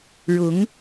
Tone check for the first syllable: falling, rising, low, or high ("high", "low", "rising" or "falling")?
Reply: rising